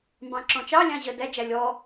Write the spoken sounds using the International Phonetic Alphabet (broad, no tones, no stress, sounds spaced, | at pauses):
m b ɑ̃ ǁ ɔ̃ t͡ʃ ɑ lʲ ɑ̃ ʑ ɜ d æ d͡ʒ æ lʲ ɔ